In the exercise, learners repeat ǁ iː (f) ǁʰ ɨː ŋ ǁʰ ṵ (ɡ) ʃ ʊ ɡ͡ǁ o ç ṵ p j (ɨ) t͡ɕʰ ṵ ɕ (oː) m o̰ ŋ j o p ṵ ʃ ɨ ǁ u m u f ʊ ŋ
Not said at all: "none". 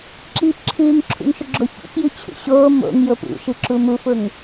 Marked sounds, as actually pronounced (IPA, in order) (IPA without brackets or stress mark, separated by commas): p, ŋ, ɨ, oː